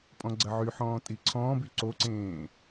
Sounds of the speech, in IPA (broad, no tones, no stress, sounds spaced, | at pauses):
pʼ ɔ̃ ɡ͡ǀ ɐ ʕ y ħ ɔ̃ː tʼ i ǀʰ ɔ̃ː b y ǀ o ǀ ẽː